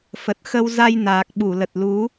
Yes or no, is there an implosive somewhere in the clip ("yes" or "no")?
yes